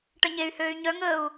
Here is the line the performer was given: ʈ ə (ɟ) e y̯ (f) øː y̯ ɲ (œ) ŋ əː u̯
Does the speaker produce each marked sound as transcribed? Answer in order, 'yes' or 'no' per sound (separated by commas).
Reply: no, no, yes